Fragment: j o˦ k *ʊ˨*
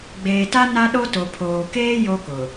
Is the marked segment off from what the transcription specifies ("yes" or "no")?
no